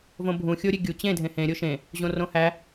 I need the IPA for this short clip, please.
v õ bʱ ũ xʲ o ɾʲ e ɡʲ u t͡ɕ ẽ dʱ ẽ h ẽ ɾʲ o ʃ ẽ | ʑ õ r õ h æ

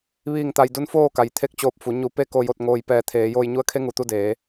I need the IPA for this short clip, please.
ʋ iː˥˨ ŋ t̪ a˧ j d u˧˥ n f oː˥˨ k a˩ j t̪ʰ e˧˥ k̚ t͡ɕ oː˧˩ p̚ f u˩˧ ɲ u˧˩ p e˥˨ k o˧ j o˧ t̚ ŋ oː˧ j p ɛː˧ t̪ʰ eː˩˧ j oː˧ j ɲ u˧˥ ə̯ kʰ e˧˥ ŋ u˩ t̪ u˥˨ d eː˩˧

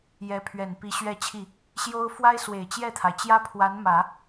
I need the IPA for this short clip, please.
j ɛ˧˥ pʰ ɥ ɛ˨˩ n p i˧˥ ɕ ɥ ɛ˥˧ t͡ɕʰ i˥˩ | ɕ j o˥ ʊ̯ f w a˥ ɪ̯ s w e˨˩ ɪ̯ t͡ɕ j ɛ˥˩ t̪ʰ a˩ ɪ̯ t͡ɕ j ä˥ pʰ w a˧˥ n m ä˨˩˦

